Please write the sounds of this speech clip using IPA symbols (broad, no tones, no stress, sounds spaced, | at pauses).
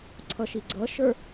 ǀʰ ʌ ʃ i ɡ͡ǀ ʌ ʃ ə˞